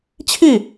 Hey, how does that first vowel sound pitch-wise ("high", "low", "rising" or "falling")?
falling